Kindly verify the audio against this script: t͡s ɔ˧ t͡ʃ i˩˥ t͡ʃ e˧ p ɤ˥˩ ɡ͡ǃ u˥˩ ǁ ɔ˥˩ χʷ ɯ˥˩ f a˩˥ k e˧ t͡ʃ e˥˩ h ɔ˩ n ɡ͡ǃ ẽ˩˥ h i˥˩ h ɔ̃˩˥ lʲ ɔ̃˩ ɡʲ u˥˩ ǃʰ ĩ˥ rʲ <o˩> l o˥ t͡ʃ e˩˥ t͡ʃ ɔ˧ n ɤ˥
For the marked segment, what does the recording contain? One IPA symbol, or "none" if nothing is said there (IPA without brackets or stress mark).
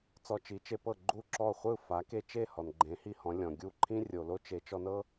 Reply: o˩